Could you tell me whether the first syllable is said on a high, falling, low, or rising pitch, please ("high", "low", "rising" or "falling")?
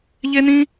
high